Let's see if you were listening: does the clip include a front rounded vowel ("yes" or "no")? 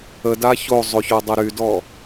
yes